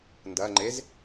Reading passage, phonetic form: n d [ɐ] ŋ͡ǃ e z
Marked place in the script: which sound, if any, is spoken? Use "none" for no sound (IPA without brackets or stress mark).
ɐ